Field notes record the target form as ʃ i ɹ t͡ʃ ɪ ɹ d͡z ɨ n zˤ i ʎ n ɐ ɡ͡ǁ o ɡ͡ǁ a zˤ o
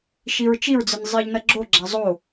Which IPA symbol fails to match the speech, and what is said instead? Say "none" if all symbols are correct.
ɪ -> i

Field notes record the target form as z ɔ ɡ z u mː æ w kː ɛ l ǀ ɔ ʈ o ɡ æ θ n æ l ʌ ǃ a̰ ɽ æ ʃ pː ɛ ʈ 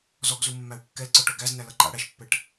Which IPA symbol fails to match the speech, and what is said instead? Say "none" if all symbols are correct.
θ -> z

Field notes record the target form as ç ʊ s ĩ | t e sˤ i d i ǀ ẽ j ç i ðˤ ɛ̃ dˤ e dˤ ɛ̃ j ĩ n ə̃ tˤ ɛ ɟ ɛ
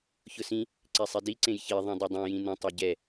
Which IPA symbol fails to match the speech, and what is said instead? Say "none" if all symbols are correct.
t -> ǀ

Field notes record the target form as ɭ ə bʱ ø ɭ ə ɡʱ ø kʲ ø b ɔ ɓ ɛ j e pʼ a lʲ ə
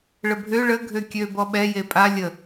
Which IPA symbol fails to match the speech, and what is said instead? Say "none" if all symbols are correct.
none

